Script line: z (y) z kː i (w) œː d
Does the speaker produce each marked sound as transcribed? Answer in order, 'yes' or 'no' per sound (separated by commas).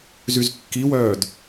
yes, yes